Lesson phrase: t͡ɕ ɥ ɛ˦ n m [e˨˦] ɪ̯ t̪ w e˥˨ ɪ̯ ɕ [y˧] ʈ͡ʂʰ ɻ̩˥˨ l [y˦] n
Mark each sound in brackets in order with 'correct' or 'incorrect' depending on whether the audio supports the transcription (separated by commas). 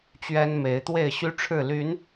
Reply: correct, incorrect, incorrect